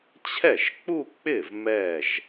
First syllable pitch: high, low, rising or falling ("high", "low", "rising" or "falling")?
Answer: falling